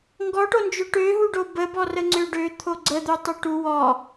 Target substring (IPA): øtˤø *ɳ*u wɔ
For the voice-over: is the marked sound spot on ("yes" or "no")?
no